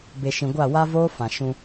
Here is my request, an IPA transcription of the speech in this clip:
b e˨ ʃ ĩ˨ ɡʷ a˦˨ w a˦ v oː˦ f ã˨ ʃ ũ˦

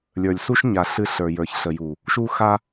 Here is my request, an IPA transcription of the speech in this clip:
lʲ ə˞˨ lʲ s u˦ ʃ ɲ a˨ ɬ ɨ˦ ɬ ə˞˨ j ə˞˨ ç ɬ ə˨ j u˨ | ʃ u˦ x a˦

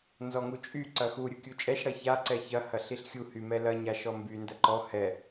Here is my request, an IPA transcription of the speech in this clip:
n z ɔ ŋ u t͡ʃʼ y ǀ ɐ x u ɾʲ u kʲ u t͡ʃʼ ɛ ʃ ɽ ɐ ç a ǀ ɛ ç ɐ h ɐ ɬ i ɬ xʲ u h y m ɛ l ɐ ɲ a ʃ ɔ m b y n d ɐ ǃ ɔ h ɛ

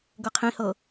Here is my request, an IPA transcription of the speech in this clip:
ɡ ɤ qʰ ĩ h ɤ

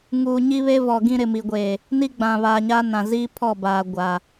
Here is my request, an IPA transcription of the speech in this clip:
ŋ uː˨ ɲ i˦ β e˦ v ɔ˨ ɡ ĩ˦ ɾ ɪ˨ m i˨ ɡʷ eː˨ | n i˦ ɡ͡b ã˨ β aː˨ ɲ a˦ n ã˨ z iː˦ pʰ ɔ˦˨ b aː˨ ɡʷ a˨

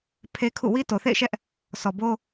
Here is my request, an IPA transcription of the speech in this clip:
pʰ e˦ kʰ ṵ˦˨ w i˦ t o˨ θ ḛ˦˨ ɪ̯ ʃ ɛ˦ ʔ | s ɔ˨ b o˦

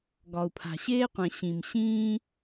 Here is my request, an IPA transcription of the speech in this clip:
ɡ ɒ˨ u̯ pʰ a̤˨ ɕ eː˦ qʷ ɛ̃˨ ɕ ĩ˨ m ɕ ĩː˦

